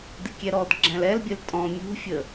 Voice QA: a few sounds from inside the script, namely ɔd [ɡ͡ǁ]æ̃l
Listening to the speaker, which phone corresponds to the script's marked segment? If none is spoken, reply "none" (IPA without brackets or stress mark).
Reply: ɡ͡ǁ